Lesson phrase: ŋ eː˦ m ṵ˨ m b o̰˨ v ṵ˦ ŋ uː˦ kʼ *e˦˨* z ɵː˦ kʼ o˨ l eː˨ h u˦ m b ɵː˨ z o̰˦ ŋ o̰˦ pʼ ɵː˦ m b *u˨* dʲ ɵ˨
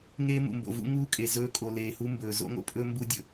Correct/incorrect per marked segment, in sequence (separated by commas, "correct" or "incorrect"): incorrect, incorrect